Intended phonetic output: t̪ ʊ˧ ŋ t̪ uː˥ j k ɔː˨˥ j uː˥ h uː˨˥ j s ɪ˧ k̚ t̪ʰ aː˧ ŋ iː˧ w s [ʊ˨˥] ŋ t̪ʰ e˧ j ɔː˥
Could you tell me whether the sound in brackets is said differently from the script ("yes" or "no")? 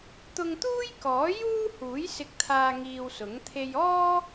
no